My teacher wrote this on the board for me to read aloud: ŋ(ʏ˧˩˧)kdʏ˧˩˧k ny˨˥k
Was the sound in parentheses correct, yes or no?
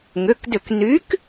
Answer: no